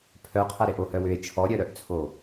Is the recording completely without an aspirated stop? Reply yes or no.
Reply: no